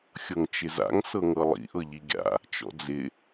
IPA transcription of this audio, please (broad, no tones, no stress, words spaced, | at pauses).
xʲɤŋt͡ʃɪza̰ŋ sɤŋɤlˠḭ ʔɤʎiɡʲa̰ | t͡ʃɔ̰d͡zɪ